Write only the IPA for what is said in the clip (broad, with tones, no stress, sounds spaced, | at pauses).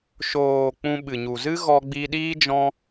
ʃ oː˨ k͡p ũ˧ ɓ ɨ˨ ɲ u˨ z ɨ˦ ɣ ɔ˧ ɡ͡b i˧ ɗ iː˦ d͡ʒ ɔ̃˦